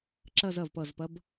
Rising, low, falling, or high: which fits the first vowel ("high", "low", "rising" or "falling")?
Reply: falling